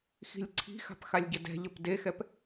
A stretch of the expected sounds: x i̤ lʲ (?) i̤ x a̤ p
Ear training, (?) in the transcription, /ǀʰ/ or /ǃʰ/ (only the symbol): ǀʰ